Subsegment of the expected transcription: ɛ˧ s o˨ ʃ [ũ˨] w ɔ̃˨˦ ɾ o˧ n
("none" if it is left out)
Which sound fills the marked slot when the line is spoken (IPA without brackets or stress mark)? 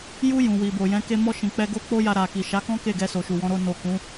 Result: u˨